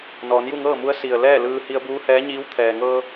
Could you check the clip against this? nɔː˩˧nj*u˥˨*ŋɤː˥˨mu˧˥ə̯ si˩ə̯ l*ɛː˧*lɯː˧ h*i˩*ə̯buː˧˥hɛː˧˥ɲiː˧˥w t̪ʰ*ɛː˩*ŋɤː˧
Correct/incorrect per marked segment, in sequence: correct, incorrect, incorrect, correct

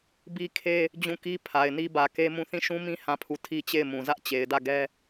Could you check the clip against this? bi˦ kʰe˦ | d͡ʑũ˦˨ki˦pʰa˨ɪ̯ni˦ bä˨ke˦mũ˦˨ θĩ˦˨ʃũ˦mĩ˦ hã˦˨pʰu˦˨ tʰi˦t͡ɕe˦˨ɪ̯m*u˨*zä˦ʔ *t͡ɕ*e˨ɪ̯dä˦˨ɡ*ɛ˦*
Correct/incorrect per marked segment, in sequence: incorrect, correct, correct

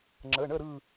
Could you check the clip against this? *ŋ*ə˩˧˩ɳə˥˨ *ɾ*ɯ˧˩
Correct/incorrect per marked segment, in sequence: incorrect, correct

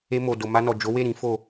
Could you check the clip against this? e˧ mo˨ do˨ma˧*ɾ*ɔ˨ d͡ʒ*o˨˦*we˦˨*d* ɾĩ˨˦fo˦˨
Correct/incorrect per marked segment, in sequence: incorrect, correct, incorrect

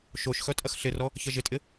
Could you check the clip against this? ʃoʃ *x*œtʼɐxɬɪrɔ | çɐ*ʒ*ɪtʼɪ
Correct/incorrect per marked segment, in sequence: correct, correct

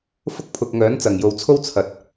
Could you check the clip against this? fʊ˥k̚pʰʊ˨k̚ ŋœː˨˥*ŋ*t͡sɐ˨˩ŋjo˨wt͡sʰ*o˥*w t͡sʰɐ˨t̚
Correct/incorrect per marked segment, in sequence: incorrect, correct

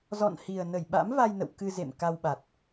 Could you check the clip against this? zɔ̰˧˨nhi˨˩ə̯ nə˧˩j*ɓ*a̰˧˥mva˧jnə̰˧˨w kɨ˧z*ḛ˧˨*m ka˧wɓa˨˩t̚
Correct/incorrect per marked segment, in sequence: correct, correct

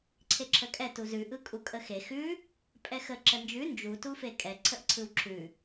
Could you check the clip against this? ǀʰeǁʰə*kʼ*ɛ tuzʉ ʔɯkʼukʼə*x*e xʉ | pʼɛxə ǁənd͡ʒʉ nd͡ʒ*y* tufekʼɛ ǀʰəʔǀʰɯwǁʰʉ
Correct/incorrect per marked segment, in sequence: correct, correct, incorrect

